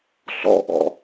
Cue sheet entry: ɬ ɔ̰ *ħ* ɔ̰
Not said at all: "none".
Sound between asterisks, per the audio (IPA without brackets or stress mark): ʔ